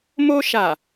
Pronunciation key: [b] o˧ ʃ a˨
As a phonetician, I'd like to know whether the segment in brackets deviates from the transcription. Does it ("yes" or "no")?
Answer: yes